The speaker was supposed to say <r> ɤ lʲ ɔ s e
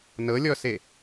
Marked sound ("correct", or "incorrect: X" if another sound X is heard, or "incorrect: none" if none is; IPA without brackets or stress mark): incorrect: n